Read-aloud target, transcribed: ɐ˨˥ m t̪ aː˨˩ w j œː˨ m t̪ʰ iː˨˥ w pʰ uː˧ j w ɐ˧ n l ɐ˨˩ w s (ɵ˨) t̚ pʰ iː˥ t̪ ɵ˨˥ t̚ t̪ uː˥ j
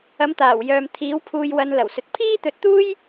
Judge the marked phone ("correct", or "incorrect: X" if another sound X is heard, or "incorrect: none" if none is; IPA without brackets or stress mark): correct